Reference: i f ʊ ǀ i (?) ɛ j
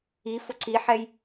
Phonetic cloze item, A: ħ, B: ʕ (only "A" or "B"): A